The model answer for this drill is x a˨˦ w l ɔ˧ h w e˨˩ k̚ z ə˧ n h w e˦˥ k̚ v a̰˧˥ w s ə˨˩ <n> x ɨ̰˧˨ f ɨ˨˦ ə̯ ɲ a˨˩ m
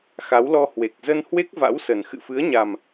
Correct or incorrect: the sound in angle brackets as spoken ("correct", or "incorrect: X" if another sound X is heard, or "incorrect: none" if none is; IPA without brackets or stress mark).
correct